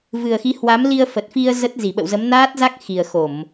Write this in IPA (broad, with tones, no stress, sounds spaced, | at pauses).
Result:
v ɨ˨˩ ə̯ x i˨˦ h w a˨˦ m l i˧ ə̯ f ə˨˩ t̚ f i˧ ə̯ z ə˦˥ t̚ z i˧˩ ɓ ə̰˧˨ w z ə˨˦ m n aː˦˥ t̚ z a˦˥ k̚ x i˨˩ ə̯ x o˧˩˨ m